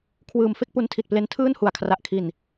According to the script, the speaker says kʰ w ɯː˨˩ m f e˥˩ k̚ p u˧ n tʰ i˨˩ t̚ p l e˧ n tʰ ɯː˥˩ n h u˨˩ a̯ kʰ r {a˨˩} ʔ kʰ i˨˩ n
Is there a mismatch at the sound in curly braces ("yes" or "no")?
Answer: no